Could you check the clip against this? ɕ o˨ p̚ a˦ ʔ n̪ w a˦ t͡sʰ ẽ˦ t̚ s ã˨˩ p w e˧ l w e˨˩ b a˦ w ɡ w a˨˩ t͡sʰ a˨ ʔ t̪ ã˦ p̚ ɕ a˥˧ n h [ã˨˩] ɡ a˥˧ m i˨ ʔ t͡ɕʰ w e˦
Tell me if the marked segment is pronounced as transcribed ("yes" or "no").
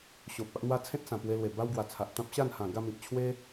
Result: yes